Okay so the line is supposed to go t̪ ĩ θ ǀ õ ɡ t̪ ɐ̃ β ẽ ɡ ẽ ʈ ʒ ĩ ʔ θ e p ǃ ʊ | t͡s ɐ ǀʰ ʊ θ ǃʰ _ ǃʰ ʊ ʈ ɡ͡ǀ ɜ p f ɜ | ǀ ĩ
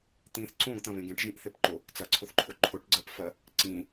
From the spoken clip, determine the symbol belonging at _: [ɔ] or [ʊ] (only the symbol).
ʊ